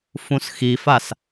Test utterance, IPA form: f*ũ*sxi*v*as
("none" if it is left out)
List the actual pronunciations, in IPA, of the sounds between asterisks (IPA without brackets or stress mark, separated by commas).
ũ, f